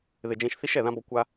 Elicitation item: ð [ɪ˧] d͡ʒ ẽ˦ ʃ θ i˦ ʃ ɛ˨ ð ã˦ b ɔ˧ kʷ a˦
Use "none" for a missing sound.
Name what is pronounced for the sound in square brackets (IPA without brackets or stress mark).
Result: ɪ˧